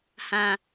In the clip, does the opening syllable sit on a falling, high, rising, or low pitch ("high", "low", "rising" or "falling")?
low